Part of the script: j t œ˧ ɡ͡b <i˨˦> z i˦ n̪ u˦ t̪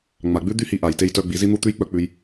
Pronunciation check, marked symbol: correct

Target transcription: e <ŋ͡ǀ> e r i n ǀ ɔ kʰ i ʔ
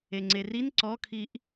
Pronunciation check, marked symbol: correct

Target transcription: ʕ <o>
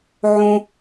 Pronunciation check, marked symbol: incorrect: õ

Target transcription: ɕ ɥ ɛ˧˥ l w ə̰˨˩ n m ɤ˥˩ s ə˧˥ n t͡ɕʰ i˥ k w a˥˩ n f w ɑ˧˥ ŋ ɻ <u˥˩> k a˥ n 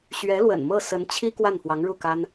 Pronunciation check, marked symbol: correct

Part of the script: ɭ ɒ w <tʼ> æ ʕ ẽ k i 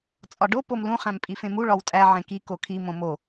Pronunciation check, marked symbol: correct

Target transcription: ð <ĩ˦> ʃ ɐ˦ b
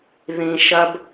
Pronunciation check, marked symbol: correct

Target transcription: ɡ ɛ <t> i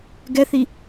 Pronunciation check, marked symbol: incorrect: θ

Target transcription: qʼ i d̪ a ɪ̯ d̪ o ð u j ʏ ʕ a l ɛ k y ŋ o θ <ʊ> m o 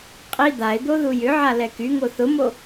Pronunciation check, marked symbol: correct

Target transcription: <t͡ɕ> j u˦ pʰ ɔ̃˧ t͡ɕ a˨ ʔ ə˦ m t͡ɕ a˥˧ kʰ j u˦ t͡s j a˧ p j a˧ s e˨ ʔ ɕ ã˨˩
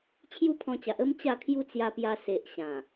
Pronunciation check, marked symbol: incorrect: t͡ɕʰ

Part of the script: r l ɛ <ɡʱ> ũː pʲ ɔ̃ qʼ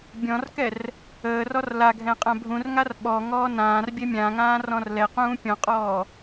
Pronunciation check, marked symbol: incorrect: q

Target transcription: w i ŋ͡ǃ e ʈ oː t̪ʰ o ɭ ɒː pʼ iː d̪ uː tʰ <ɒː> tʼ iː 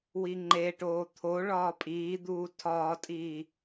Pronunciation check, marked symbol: correct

